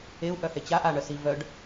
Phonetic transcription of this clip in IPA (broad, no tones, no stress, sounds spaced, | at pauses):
e u̯ ʔ œ h e t͡ɕ a ʔ a ɳ œ s i v œ ɖ